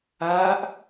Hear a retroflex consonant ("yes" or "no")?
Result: no